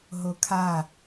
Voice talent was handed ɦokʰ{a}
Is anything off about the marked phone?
no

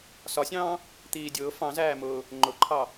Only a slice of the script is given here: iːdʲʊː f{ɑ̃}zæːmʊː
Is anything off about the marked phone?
no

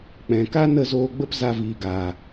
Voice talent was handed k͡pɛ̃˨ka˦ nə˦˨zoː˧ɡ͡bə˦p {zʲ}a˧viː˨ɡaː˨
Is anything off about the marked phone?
yes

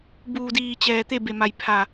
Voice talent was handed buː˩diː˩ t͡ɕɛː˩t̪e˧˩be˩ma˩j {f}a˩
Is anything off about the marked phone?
yes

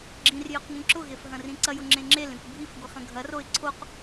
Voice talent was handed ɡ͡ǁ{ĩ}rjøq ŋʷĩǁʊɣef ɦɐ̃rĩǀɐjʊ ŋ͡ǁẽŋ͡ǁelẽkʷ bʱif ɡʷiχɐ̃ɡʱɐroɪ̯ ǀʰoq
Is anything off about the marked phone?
no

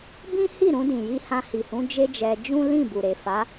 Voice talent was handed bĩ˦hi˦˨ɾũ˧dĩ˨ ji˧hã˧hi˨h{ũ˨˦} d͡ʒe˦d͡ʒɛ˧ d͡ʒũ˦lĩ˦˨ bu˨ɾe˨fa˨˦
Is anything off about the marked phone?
no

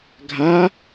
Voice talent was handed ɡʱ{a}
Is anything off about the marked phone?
no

